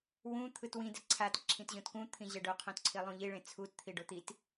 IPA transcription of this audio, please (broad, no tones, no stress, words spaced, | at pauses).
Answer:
wũ t̪ʰɯtwĩ dɛǀʰat ǁʰĩtʑõtkũ t̪ʰĩʑɛɖo qʰõtǀʰilˠũʎi ɭẽt͡sʰut t̪ʰiɖot̪it